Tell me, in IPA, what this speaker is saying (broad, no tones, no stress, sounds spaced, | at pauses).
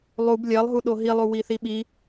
lˠ u b lʲ ɜ lˠ ɦ u ɗ o ɦ i lˠ u w i θ i ɓ i